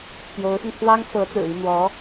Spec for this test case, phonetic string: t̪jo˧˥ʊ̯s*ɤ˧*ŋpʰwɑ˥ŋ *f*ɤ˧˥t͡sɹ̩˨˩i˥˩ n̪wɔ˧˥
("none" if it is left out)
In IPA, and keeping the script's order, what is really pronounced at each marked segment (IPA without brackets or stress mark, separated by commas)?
ɤ˧, f